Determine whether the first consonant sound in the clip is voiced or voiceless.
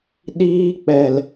voiced